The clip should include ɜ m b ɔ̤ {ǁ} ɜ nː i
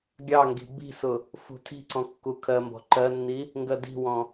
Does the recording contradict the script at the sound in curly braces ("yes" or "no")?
yes